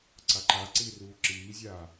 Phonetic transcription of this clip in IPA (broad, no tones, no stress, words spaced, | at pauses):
ǀaǃa ǀiːruːǁiːzʲaː